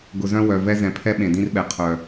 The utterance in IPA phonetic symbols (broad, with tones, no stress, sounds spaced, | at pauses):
ɡ ʊ˨ z œ̃˦ w œ˨ v ɛ˦ z ɛ̃˨ pʰ ɛ˦ ɓ ẽ˨ d ĩ˦ r ɓ ɛ˨ qʰ œ˨